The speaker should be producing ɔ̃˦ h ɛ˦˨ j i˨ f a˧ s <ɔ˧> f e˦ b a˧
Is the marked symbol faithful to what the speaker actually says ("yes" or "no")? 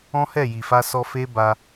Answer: yes